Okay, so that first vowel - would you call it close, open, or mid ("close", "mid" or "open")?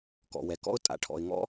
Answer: mid